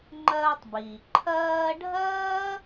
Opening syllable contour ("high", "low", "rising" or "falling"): high